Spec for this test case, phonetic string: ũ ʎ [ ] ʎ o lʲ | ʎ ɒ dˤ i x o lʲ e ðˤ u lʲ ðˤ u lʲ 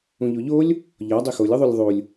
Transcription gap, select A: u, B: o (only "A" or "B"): B